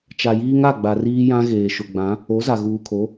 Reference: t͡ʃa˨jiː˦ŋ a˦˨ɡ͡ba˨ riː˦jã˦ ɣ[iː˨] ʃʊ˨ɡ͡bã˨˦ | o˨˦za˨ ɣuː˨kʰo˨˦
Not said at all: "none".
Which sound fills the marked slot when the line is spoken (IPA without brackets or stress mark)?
eː˨